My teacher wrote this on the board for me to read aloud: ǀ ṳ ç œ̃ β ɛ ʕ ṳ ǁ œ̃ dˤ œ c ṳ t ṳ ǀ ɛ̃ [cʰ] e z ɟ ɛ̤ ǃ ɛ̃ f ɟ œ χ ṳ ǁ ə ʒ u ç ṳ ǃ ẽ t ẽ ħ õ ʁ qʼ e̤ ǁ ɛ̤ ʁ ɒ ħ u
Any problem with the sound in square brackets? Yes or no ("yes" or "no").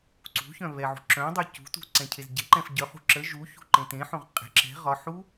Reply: no